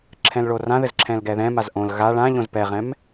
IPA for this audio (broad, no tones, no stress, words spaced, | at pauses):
ǁʰɛ̃lɭorãðɘz ǁʰɛ̃lɡɛðɛ̃maz ʔõl ɣa ɭãʎõz pɛʁɛ̃m